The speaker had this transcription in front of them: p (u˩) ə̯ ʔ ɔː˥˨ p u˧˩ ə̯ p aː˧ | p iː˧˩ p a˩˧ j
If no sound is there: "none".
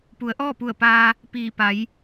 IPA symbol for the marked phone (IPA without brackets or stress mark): u˩˧